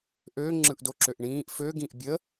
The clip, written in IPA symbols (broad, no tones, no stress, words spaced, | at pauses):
ʔø ŋ͡ǁɯʔdoǁøʔɳĩːʔ fø ɡĩʔbʲə